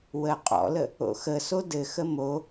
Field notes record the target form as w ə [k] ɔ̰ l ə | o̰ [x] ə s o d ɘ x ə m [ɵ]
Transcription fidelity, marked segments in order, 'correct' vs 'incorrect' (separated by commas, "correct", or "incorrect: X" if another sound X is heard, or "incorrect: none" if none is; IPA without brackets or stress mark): incorrect: qʼ, correct, incorrect: o